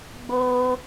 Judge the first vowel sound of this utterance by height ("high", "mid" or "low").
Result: mid